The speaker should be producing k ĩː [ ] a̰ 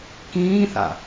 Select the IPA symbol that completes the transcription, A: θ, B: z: A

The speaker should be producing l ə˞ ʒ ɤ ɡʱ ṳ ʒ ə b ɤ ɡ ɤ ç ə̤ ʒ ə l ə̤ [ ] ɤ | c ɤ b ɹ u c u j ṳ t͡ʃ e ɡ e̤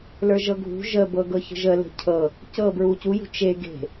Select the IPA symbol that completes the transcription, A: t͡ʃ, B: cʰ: B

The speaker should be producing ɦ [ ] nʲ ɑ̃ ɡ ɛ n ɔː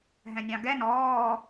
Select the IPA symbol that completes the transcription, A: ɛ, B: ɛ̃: B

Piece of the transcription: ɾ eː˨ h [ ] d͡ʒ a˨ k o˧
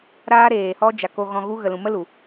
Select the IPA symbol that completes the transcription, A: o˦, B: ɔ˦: B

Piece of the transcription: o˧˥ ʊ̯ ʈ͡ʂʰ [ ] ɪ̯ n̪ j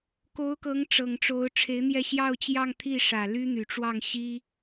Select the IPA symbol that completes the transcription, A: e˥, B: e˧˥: B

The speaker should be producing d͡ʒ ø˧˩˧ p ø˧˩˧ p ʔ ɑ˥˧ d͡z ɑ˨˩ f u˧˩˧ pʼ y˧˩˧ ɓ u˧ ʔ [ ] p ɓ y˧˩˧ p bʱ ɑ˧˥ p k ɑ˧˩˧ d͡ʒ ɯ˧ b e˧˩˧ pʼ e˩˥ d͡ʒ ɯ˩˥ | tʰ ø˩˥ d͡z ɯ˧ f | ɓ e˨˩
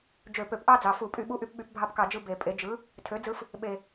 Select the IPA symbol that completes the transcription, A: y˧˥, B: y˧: B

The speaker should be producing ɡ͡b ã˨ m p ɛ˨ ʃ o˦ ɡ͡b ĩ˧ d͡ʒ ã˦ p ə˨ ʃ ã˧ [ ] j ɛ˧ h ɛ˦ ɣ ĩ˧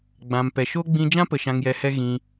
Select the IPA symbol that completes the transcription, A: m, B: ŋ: B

